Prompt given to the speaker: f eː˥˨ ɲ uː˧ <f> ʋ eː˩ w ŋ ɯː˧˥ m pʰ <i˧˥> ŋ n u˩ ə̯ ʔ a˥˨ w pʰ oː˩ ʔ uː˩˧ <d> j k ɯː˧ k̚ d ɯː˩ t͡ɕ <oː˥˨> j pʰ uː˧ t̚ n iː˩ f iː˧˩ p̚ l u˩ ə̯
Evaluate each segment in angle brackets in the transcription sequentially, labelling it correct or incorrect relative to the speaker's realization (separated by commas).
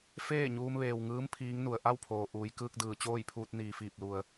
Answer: incorrect, incorrect, incorrect, correct